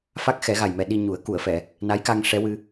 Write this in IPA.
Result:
fa˦˥k̚xɛ˨˩˦ɣa˨˩jmɛ˨˩ ɗi˧ɲu˨˩˦ə̯ ku˨˩˨ə̯fɛ˨˩˨ | na˧˥jka˧ŋ ʂɛ˧˥wɨ˧

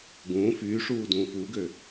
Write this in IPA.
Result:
ɡũː fyːʂuː dũːfuːɡø

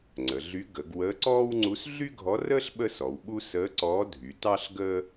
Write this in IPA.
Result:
ŋ͡ǀə˩˧ɮy˧˥ ɡə˩˧ɡ wəː˧˥ǀɔː˥wŋ͡ǀu˧˥s ɮy˥ɡʱɔ˧˥rəː˥ɬ ɓə˥sɔ˩˧wɓu˥ səː˧˥ǀɔː˧˥dʱy˩˧ tɑ˥ɬ ɡəː˥

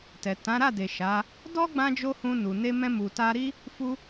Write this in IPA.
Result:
tɛ˨ tã˨˦ɾa˦˨de˨ ʃa˨˦ | dɔ˦ɡ͡bã˧d͡ʒo˧ hũ˧ nu˨ne˧ mɛ̃˧mu˨ta˧ɾi˦ | fu˧

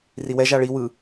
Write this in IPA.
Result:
riwɛʒ aɭi wɯ

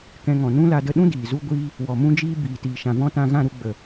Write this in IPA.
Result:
kɛ̃˧ŋɔ̃˨ nũ˦la˧də˧ ɗũ˦ diː˨zu˦ ɡʷiː˦ | wɔ˨mũ˦d͡ʒiː˦ biː˨tiː˨ʃã˨vɔ̃˦ tã˧ɣã˦˨ɾu˧ ɡ͡bə˨

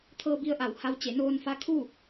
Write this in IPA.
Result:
t̪ʰɤː˧bi˧ə̯ʔa˩wha˧w t͡ɕe˩˧noː˧n fa˧˥kʰu˥˨

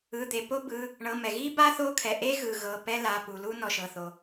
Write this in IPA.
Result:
ɯ˩˧˩d̪e˩ po˥bɯ˩˧˩ | ɳɤ˩˧˩mɛ˩ɣi˥ba˥ θo˥kʰɛ˩ ʔe˥ ɣɯ˩ ɣɤ˩˧˩ pɛ˥la˩˧˩ pu˩lu˥ nɔ˩ʃɤ˩θo˩

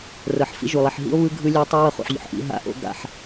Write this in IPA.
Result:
rɤ˨ħfḭ˦ʒu˨lˠi˨ħ ɦḭ˦o̯βɯ˦ ɡʱɯ˦lʲo˦ tˤa˦wɤ˧χṵ˨ħʎo̰˨ħ ʔḭ˧ ɦa̰˦ʔo̰˦ ɡa̰˧ħ

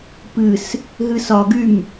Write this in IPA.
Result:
pɨs | ɦɨsɒɡym

